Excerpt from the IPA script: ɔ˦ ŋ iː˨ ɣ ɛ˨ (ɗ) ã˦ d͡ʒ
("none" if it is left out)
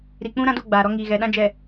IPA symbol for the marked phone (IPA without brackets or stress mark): ɗ